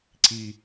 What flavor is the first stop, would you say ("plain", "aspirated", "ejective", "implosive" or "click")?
click